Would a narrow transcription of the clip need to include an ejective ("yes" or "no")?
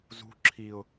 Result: no